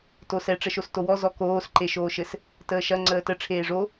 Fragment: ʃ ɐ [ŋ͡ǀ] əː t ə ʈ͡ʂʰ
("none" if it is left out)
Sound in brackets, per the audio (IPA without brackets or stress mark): ŋ͡ǀ